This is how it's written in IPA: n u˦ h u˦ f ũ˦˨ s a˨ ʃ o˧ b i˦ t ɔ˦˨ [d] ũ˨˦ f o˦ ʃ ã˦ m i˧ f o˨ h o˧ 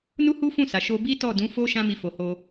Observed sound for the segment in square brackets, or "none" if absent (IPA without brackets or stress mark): d